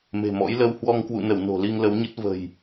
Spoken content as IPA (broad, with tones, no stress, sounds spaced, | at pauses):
m e̤˨˩ m ɔ̰˧˥ j l ə˧ w h w ɔ˧ ŋ k w ṵ˧˨ n ə˧˩ w n o̤˨˩ l i˧ ŋ l ə˨˦ w ɲ ə˦˥ t̚ v ə̤˨˩ j